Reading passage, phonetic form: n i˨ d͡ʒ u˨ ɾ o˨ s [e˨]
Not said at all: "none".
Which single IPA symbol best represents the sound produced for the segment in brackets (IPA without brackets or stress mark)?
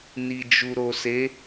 e˨˦